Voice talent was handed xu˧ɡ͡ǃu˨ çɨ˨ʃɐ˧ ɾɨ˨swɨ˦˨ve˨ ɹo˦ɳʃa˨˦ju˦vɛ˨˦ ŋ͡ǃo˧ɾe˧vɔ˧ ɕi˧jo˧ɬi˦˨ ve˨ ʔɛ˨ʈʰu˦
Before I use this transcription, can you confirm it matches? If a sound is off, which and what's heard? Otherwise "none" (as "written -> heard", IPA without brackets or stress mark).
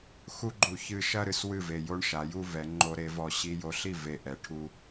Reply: ɹ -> j